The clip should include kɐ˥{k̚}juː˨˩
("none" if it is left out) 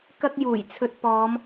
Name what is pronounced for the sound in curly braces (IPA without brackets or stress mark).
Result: k̚